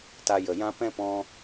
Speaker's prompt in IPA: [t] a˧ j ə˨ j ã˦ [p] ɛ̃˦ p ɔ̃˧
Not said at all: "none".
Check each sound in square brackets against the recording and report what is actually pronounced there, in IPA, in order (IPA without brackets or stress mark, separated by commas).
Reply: t, p